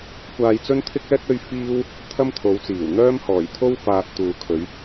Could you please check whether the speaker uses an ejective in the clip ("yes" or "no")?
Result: no